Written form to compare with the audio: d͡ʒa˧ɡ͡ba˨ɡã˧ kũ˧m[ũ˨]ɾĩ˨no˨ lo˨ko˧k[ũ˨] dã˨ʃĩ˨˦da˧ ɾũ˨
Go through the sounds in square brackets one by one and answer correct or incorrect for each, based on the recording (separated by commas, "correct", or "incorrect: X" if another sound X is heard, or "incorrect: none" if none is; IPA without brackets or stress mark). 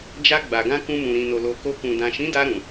correct, correct